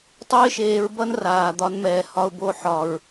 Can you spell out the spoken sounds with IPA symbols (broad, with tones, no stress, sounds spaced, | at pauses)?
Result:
tˤ o˦ ɪ̯ ʃ eː˧ ɹ b ʌ˦ n r aː˨ d̪ ɒ˧ n m ɛː˨ h ɒ˧ ʊ̯ b o˧ ħ ɒ˨ ɹ